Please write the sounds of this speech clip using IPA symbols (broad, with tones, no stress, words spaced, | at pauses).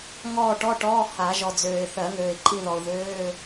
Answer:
ŋɔː˦˨ ʈɔ˧˥˧ʈɔː˧˥˧ ha˨˩˦ʒɔ˨d͡zøː˨ɪ̯ θɜ˨˩˦ŋøː˨ɪ̯ǃʼi˦˨ðɔ˨ʊ̯ ðøː˧˥˧